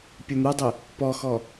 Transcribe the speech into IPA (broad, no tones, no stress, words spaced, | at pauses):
pʲɯn̪udˤe | pɔxɔ